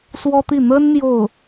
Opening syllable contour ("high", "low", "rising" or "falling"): high